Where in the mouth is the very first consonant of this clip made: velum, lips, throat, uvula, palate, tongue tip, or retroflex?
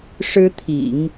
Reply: retroflex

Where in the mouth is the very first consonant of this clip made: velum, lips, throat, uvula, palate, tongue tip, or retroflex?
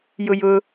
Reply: palate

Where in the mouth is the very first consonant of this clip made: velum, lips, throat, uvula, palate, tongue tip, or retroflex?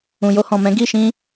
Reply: palate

